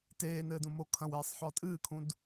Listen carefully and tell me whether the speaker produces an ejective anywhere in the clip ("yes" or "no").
yes